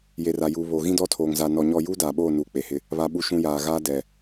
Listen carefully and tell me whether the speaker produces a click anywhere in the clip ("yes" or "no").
no